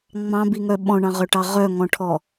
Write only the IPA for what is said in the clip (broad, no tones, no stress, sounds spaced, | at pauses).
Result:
ŋ͡m ɑ̃ b i ŋ œ ɓ ɔ̃ ɳ ɑ̃ ʁ œ ʈ ɑ ʁ œ ŋ ɔ̃ ʈʰ ɔ